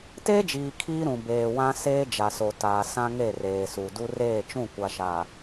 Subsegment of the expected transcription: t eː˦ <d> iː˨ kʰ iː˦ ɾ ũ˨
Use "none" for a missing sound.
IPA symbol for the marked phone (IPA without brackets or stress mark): d͡ʒ